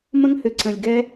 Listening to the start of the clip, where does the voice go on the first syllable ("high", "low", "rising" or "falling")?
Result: high